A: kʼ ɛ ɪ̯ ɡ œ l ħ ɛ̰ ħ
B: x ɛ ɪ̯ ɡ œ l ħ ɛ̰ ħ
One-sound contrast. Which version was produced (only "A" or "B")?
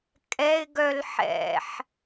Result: A